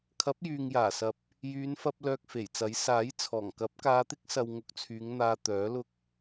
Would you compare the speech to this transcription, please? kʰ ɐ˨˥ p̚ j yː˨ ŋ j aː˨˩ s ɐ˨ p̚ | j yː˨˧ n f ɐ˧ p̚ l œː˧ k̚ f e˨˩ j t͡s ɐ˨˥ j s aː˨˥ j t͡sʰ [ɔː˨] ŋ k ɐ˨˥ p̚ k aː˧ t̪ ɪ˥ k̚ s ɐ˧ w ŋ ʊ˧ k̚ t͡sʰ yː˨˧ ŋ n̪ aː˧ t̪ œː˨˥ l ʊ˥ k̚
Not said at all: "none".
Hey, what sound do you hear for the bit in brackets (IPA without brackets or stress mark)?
ɔː˨˩